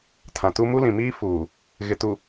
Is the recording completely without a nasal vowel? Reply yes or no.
no